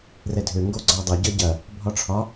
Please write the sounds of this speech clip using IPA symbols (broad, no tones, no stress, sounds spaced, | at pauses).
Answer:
r ɛ dʱ ø ŋ ɡ o ɡ͡ǀ ɒ dˤ ʌ ɟ ʌ ɟ ɐ | bʱ ɒ ʈ͡ʂʰ ɒ